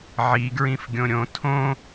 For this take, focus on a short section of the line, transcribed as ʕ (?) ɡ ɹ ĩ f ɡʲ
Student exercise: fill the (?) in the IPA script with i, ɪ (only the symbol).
i